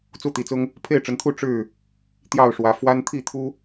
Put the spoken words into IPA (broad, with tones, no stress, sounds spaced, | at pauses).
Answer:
t͡s u˥˨ t̪ i˨˦ t͡s ʊ˦ ŋ | pʰ e˥˨ ɪ̯ ʈ͡ʂ ə˨˦ n t̪ʰ u˥˨ ʈ͡ʂ ɻ̩˥˨ | t̪ j ɑ˥˨ ʊ̯ ʂ w ä˨˦ f w a˦ n t̪ʰ i˥˨ t̪ʰ u˦